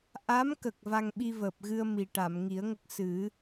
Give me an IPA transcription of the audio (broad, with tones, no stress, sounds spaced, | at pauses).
ʔ a˧˥ m k ə˨˩ k̚ v a˧ ŋ ɓ i˧ v əː˨˩ p̚ ɣ ɨ˧ ə̯ m i˨˩ ʈ a˨˩˨ m ŋ i˨˩˦ ə̯ ŋ ə˦˥ k̚ s ɨ˨˩˦